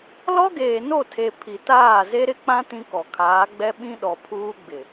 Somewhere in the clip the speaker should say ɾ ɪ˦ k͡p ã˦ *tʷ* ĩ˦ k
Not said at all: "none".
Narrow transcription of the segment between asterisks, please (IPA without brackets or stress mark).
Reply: t